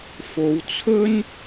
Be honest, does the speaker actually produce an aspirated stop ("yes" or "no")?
yes